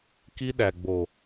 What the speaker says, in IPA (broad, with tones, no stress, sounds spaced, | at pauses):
k i˦ ɗ æ˨ ɡ͡b o˨